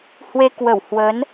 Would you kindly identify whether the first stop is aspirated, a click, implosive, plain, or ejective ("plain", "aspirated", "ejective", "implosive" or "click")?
plain